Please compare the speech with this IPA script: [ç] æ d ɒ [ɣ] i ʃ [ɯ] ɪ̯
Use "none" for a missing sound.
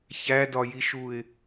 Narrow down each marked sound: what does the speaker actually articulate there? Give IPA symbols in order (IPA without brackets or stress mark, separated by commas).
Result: ç, j, u